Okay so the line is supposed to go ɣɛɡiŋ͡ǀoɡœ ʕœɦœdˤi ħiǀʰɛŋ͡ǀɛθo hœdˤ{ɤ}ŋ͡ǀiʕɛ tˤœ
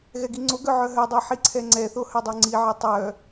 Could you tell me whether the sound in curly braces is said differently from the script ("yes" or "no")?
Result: yes